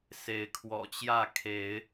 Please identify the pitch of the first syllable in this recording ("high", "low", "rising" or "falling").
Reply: rising